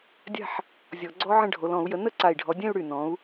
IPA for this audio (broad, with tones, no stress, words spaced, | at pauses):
dʲa̤˥˧ħ | zʲɔ˧˩˧ɡ͡ǀɔ˦˥ʕə̃˥˧ɖʱo˨˦l ɔ̃˧˩˧u̯jə˨˦ nə˥˧ǀa˧˩i̯ɖʱɔ˨˦dʲɛ̃˥˧u̯ ɽy˧˩nɔ̃˨˦u̯